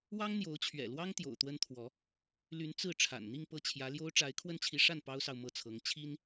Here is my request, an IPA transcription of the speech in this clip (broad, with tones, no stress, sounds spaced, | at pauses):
w ɑ˥ ŋ n̪ j o˧˥ ʊ̯ t͡ɕʰ ɥ ɛ̰˨˩ l w ɑ˥ ŋ t̪ j o̰˨˩ ʊ̯ t̪ w ə˥ n t̪ʰ w ɔ˧˥ | l y˧˥ n t͡s ɹ̩˥˩ ʈ͡ʂʰ a̰˨˩ n n̪ i˥˧ ŋ p ɤ˥˩ t͡ɕʰ j ä˧˥ l j o˥ ʊ̯ ʈ͡ʂ a˧˥ ɪ̯ kʰ w ə˥˩ n t͡ɕʰ i˧˥ ʂ a˥˩ n p ɑ˥ ʊ̯ s ɑ˨ ʊ̯ m ɤ˥˩ t͡sʰ ɤ˧˥ ŋ t͡ɕʰ i˥ n